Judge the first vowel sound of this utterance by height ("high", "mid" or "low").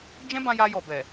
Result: mid